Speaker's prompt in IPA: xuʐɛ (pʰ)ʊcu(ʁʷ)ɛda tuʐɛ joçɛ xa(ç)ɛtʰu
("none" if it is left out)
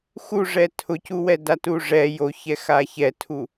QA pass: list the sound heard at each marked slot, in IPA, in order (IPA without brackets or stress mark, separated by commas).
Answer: tʰ, w, ç